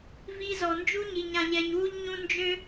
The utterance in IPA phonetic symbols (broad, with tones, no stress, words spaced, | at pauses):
vi˧zɔ˨ nd͡ʒu˦ɲi˨ɲã˨ ʎɛ˨ɲwu˧ʎ ɲũ˧ nd͡ʒø˦